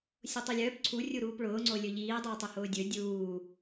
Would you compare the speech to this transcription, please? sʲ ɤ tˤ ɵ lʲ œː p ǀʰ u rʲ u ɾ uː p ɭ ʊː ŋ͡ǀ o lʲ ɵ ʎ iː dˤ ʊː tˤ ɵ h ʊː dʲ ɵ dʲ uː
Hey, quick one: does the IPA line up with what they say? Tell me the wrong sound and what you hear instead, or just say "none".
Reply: ɤ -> o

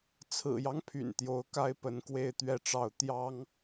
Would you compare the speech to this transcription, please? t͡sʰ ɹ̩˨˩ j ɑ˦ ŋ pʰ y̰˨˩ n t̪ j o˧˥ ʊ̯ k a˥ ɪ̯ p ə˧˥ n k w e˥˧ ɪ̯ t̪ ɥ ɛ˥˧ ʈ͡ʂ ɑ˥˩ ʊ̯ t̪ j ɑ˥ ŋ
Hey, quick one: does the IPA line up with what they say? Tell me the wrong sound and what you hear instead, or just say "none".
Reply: none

